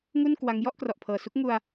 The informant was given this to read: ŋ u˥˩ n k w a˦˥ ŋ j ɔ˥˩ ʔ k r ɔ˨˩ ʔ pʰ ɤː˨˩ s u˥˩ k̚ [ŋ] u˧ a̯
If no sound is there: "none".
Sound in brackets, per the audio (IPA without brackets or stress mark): ŋ